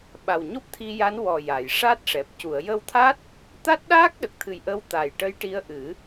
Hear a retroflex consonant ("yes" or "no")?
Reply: yes